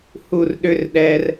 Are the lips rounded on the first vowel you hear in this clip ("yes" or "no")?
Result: yes